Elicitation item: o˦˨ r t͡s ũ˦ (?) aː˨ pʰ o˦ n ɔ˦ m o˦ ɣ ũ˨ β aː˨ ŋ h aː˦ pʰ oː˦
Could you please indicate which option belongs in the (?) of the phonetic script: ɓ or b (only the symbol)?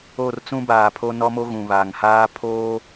b